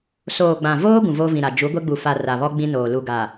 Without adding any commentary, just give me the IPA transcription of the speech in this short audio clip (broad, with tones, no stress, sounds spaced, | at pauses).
s oː˨ ɡ͡b ã˨ v oː˦ ɡ ũ˨ v oː˦ v ĩ˨ ɾ a˨ d͡ʒ u˨˦ ɡʷ e˦ ɡ͡b u˨ f a˨ r a˨ β ɔ˦ ɡ͡b ĩ˦ n oː˨ l u˨ ɡ a˨